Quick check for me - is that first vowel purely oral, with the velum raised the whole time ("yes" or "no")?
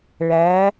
yes